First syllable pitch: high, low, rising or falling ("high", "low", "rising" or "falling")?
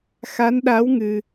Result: rising